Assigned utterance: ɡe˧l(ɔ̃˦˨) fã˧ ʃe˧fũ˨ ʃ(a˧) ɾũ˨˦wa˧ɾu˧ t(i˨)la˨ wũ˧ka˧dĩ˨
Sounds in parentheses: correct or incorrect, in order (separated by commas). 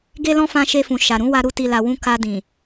incorrect, incorrect, correct